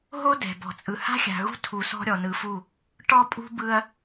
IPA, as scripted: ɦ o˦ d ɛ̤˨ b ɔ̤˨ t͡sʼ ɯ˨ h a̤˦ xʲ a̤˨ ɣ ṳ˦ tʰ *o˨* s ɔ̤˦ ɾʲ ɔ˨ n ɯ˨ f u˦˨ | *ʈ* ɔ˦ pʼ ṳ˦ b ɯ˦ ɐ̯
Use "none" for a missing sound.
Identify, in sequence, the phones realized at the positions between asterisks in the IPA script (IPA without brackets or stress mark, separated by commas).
u˨, ʈ